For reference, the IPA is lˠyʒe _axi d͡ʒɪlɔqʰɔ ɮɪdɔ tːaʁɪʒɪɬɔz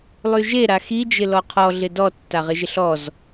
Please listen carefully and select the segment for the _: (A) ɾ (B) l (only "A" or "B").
A